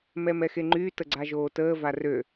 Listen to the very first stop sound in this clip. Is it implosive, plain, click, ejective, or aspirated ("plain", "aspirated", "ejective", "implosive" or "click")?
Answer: click